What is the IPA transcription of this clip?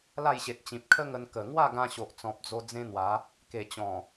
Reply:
l a˥˧ j ɕ e˨ t̚ t͡ɕ ĩ˨ p̚ kʰ ə˦ ŋ ə˧ n k ə˨˩ ŋ w a˥˧ ɡ ã˧ ɕ o˨ ʔ t͡s ɔ̃˨ p̚ d͡z o˧ d͡z ẽ˦ n̪ w a˨˦ | k e˨˩ t͡ɕ ɔ̃˨˩

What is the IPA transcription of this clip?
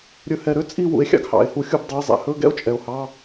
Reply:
ɾʲ ɵ˨ h ɛ˨ ɾ ø˥˧ t͡sʼ i˥˧ w ṵ˨˦ e̯ xʲ ɑ̰˥˧ ɡ h ɑ̰˨˩˦ e̯ h u˨˦ xʲ u˥˧ b dˤ ɵ˧˥˧ j zˤ ɛ̰˨˩˦ h ɵ˧˥˧ ɡ ɛ̰˥˧ o̯ t͡ʃʼ ɛ˨ o̯ h ɑ˧˥˧

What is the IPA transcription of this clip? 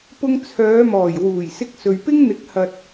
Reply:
p ʊ˧ ŋ t͡sʰ œː˨˧ m ɔː˨˩ j w uː˨˩ j s ɪ˧ k̚ s ɵ˨ ɥ p ɪ˥ ŋ n̪ ɪ˨˥ k̚ h ɐ˨ t̚

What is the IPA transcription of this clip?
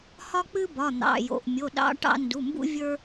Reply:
h ɒ˦ k͡p ɨ˦ b ɒ˩˧˩ n̪ ɑ̰˩˧˩ j o̰˩˧˩ ʔ mʲ o˩˧˩ ɗ ɑ̰˦ ʈ ɑ̰˦ n d u˩˧˩ m b ṵ˦ vʲ ə˞˦

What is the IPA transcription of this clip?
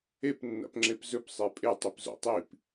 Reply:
e p nː a̰ p ŋ͡ǁ e p z ɵ p sˤ e pʼ e tˤ i p z o̰ tˤ i p

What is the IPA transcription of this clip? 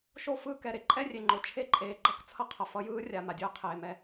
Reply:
ʃ o˦˨ f ɯː˦ k ɛ˨ ɾ e˦ ǃʼ ɛ˦ rʲ e˨ ŋ͡ǃ o˨ t͡ʃʰ e˦ ǃʼ eː˨ ɡ͡ǃ ʌ˦ k t͡sʰ ʌ˦ qʰ ʌ˨ f ʌ˦ j ɯː˦ rʲ a˨ m a˨ dʲ ɯː˦ qʰ eː˨ m ɛ˦

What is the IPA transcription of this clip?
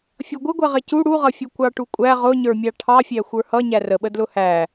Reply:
fʲ ʌ ɡʷ ɪ ɡʷ ɛ ʁ ɪ c u ɽ u ʁ ʌ fʲ u kʷ ɑ ʈ u kʷʼ æ ʁ ʊ ɲ ə˞ mʲ ɑ ʈʰ ɑ fʲ æ xʷ ə˞ h ʌ ɲ æ r ə ɓ ə d l ʊ h æ

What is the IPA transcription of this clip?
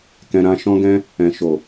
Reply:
k ɛ̃˧ ɾ ã˧ ʃ ɔ̃˦ ɡ ɛ̃˦ | ɛ̃˨ ʃ o˨

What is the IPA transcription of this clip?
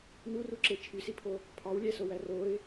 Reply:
n u r u ǁ e t͡ʃʰ y s i pʰ o | pʰ ɑ w lʲ æ s o w æ r o ɪ̯

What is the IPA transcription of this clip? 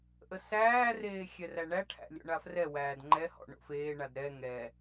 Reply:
ʔ ə s æː r eː xʲ ɛ r æ ɳ æ ʈʰ æ̰ lʲ o̰ ɳ a f r ɛ w æː d ŋ͡ǃ ɛ h ɔ̰ ɳ o̰ f eː ɳ a d ɾ ɛ ŋ ɛ

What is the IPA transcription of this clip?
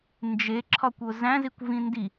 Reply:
n d͡ʒ e ǁʰ ɒ kʷ o z æ̃ z i kʷ v ĩ n d i

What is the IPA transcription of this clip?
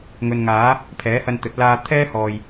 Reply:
ŋ ɵ˨ n ŋ aː˨˥ | pʰ ɛː˨˥ h ɐ˧ n t̪ ɵ˨˥ t̚ l aː˧ t̪ʰ ɛː˥ h ɔː˨ j

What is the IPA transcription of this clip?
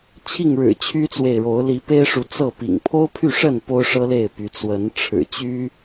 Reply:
t͡ɕʰ i˥˨ ŋ ɻ ɻ̩˨˩ t͡ɕʰ y˦ t͡s w e˨ ɪ̯ ɻ o˨˦ ʊ̯ l i˨˦ p e˦ ɪ̯ ʂ u˨˦ t͡s ɤ˥˨ p ḭ˨˩ ŋ pʰ o˦ ʊ̯ pʰ y˥˨ ʂ ə˥˨ n p o˦ ʊ̯ ʂ ɤ˦ l e˥˨ ɪ̯ p y˨˦ t͡s w ə˨˦ n ʈ͡ʂʰ ɻ̩˨˩ t͡ɕ y˦

